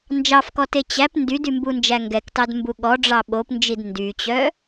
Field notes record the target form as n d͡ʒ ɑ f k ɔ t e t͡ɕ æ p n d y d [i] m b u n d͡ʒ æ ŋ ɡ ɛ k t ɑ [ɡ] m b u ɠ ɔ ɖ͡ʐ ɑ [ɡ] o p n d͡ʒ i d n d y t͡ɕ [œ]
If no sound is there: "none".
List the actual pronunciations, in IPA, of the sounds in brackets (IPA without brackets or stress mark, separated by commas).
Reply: y, d, ɓ, œ